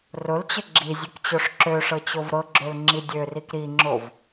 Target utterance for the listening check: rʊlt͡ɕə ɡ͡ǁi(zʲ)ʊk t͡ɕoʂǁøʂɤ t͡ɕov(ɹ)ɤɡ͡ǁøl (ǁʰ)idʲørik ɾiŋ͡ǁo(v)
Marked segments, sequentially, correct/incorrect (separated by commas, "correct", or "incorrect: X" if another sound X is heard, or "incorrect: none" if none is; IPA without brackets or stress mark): correct, incorrect: ɾ, incorrect: ŋ͡ǁ, correct